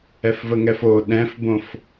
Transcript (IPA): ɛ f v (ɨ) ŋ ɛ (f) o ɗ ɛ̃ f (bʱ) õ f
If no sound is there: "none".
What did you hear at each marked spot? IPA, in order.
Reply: ə, f, b

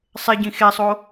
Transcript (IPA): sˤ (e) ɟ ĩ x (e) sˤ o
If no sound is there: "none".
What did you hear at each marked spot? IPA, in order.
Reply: e, e

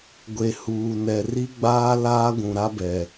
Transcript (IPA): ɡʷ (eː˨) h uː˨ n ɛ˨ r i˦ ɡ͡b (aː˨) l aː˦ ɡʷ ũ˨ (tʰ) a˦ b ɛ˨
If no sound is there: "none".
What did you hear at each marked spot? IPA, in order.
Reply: e˨, aː˦, ɾ

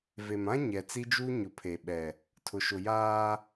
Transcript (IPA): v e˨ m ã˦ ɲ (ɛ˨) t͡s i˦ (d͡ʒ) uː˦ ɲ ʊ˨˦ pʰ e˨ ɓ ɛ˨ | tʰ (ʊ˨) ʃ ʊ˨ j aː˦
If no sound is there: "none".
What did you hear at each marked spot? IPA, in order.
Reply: ɛ˨, d͡ʒ, ʊ˨

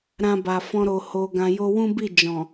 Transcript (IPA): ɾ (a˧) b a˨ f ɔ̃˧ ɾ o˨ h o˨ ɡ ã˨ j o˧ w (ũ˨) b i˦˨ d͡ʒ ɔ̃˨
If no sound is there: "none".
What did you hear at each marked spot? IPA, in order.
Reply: ã˧, ũ˦

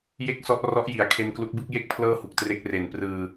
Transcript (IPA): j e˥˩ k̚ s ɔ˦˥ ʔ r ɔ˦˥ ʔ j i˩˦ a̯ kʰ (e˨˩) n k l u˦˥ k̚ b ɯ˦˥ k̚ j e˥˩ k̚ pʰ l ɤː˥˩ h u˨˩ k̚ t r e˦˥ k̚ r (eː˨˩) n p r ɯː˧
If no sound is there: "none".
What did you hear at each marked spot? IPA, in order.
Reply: e˧, e˨˩

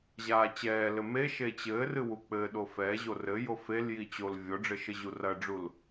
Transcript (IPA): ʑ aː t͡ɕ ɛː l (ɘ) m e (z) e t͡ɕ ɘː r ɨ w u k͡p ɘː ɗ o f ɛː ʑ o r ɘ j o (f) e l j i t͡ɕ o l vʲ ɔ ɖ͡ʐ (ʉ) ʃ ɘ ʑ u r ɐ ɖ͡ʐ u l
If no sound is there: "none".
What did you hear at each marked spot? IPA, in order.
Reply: ɘ, ʃ, f, ɘ

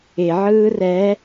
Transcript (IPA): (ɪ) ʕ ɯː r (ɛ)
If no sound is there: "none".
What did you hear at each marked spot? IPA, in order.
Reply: ɪ, ɛ

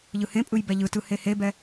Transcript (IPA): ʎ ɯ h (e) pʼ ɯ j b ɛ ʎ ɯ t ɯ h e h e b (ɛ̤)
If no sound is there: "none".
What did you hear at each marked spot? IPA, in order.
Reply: ẽ, ɛ

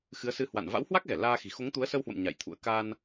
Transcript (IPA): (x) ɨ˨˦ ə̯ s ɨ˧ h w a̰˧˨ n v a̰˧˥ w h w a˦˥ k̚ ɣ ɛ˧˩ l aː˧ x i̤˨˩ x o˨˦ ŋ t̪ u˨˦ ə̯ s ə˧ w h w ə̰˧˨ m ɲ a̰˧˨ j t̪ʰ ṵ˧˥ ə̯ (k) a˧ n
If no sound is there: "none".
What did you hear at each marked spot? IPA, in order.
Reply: x, k

